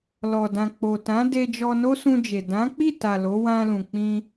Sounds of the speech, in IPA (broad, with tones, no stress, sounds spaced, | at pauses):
l ɔ˨ d ã˨ k͡p o˨ t ã˨˦ d e˧ d͡ʒ ɔ˧ n o˦ s ũ˧ d͡ʒ e˨ d ã˨˦ k͡p i˦˨ t a˨ l o˨˦ w ã˧ l ũ˨ k͡p ĩ˧